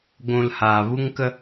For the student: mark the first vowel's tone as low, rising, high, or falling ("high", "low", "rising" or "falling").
high